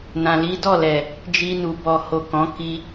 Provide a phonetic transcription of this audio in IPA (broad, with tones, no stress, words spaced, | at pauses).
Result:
nã˨li˨˦ dɔ˦˨lɛ˨ | d͡ʒi˧nu˨ bɔ˨ho˨ kɔ̃˨˦ ki˧